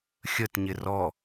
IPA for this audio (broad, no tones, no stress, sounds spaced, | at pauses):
xʲ ə t ɲ ɪ r ɔ